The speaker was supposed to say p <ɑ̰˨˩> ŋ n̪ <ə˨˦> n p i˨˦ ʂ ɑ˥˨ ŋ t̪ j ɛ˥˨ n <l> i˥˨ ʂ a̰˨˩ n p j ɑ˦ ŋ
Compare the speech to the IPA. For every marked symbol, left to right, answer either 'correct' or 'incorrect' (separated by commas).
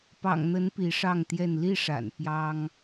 correct, correct, correct